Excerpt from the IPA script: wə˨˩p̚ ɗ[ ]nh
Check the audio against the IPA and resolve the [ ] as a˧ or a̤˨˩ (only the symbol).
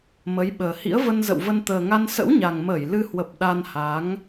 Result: a˧